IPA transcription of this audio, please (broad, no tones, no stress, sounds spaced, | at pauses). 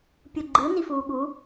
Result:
pʲ u ɡ͡ǃ ɯ n i f uː ɠ u